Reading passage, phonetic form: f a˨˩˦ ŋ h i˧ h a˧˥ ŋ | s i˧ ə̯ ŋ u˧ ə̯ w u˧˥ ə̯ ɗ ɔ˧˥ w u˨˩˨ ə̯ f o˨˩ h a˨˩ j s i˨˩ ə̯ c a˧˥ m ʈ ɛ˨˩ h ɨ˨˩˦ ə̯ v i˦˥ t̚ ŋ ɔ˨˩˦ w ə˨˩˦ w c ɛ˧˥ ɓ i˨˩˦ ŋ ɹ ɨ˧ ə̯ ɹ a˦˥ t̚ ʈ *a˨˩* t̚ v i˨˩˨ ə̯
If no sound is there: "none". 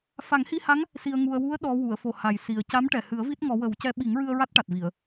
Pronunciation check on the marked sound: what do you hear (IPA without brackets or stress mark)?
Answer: a˨˩